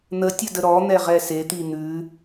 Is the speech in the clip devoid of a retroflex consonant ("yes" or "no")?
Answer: yes